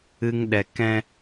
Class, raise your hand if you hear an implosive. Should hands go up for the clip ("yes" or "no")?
yes